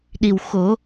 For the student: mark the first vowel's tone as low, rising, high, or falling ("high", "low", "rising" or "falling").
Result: low